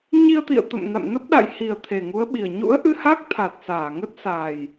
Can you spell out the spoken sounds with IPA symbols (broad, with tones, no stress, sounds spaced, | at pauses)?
ɲ i˧ ə̯ t̪ ḭ˧˨ ə̯ t̪ ə̰˧˨ m n a̰˧˨ m n ə˦˥ p̚ ɗ a̰˧˨ j h i˨˩ ə̯ t̪ʰ e˨˩ ŋ u˨˦ ə̯ ɓ i˨˩ ə̯ ɲ ṵ˧˥ ə̯ ʔ ɨ˧ h a˦˥ k̚ t̪ʰ a˨˩ t̚ s aː˧˩ ŋ ə˦˥ t̚ s a˨˩ j